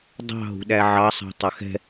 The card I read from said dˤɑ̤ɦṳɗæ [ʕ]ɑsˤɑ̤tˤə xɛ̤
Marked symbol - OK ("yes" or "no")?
yes